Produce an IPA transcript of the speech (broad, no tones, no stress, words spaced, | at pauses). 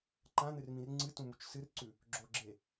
ǃãn̪ɨrmĩr ŋ͡ǀɨtũmut͡ʃ sɨrǀʉ | ɡ͡ǁoɡ͡ǁe